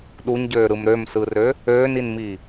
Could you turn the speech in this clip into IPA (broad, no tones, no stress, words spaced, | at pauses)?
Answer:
ɗuɲɟøːɾɯm ɾømsɯrø | øːninmiː